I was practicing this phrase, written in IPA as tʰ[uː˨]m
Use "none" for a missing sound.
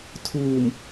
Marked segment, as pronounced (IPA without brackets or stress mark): uː˨